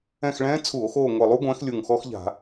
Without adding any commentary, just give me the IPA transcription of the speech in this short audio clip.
ɛ̃˦˨ x ɭ ɛ̃ː˦˥ t͡sʰ u˧˩˧ o̯ x oː˦˨ ŋʷ ɛ˨˩ lˠ u˦˥ ɡʷ ɛ̃ː˨˦ x lʲ u˨˩ ŋ x ɔ˦˥ x ʎ a̤˧˩˧

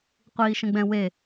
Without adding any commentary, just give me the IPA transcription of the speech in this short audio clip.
qʷ iː ʃ ə̃ ɡ͡b ɛ̃ w e

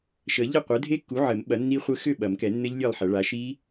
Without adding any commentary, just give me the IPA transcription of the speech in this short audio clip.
ʃ ə˨˩˦ ʎ ɘ˥˨ qʷ ɘ˩˥ dʱ e˦˥ kː u˩˥ ʕ ɘ˨˩˦ m ɓ ɐ˩˥ nː i˦˥ χʷ ɘ˦˥ x ʏ˥˨ ɓ ɐ˨˩˦ m k ɛ˨˩˦ nː ɘ˦˥ ʎ lʲ e˥˨ lˠ ħ ɐ˨˩˦ ɭ a˩˥ ʃ i˦˥

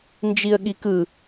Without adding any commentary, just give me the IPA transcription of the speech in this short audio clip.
n d͡ʒ i ə̯ ɠ i k ɯ

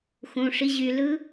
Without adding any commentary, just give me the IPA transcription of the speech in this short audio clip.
x ũ ʂ i ʑ y l ɯ

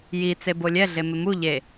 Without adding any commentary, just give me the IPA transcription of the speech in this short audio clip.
j i t͡s e b o lʲ ɛ ɮ e m ɪ m u ʎ e

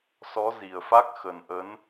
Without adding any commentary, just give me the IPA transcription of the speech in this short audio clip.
s ɔ˨˦ z i˨˩ ə̯ f a˦˥ k̚ x ə˨˩ n ʔ ə˨˦ n

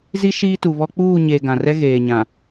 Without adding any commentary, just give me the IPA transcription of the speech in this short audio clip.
z i˦ ʃ iː˦ t u˨ β ɔ˦ k͡p uː˦˨ ɲ e˨ ɡ ã˨ r ɛ˦ ɣ eː˨ ɲ ã˨

